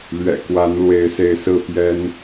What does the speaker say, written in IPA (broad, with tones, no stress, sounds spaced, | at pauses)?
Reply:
l ɥ ɛ̰˨˩ k w a˨˦ n l w e˨˦ ɪ̯ s e˨˦ ɪ̯ s ɹ̩˥˨ p j ɛ˦ n